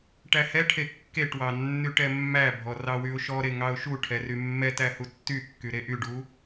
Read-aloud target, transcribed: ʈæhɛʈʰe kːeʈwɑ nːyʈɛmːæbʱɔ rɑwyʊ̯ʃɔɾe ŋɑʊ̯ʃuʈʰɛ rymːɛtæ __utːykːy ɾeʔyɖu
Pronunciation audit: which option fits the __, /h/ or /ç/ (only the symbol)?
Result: h